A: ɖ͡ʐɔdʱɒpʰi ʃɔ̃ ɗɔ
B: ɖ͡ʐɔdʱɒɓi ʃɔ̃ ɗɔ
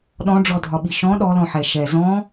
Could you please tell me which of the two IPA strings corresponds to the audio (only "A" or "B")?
B